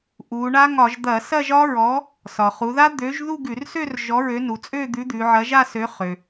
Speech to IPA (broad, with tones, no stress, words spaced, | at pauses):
ʔu˩˧ɳa˦˥ŋɒ˧˩˧ʒ d̪ɐ˧˩˧sɐ˥˧ʒɒ˦˥ɹɔ˨˥ | sɒ˩χu˩˧ða˦˥ d̪ø˨˥ʒðu˥˧ɡʉ˧˩˧rsø˥˧r ʒɔ˨˥ɹø˨˥nu˩˧t͡sʼø˥˧ d̪ʉ˨˥d̪ʉ˩˧ ʕɐ˨˥ʒa˥˧sø˨˥ χø˩